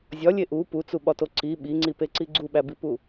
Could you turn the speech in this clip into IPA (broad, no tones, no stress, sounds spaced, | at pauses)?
zʲ ɒ lʲ e ʔ u p u t͡s u ɓ ɒ t o ǀ i ɓ i ŋ͡ǀ i p e ǀ i ɡ͡ǀ u ɓ æ b i p u